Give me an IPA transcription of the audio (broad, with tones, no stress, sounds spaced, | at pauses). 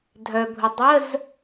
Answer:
dʱ œ˩ bʱ ʊ˩ dˤ ə˧˥˧ z